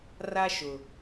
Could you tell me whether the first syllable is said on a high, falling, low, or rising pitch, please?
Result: high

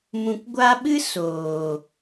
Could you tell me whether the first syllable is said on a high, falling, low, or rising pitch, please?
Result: low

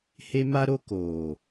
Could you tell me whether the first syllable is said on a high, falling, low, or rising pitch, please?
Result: high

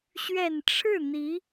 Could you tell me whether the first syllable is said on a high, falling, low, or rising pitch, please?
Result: low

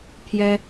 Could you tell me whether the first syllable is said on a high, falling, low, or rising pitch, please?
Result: high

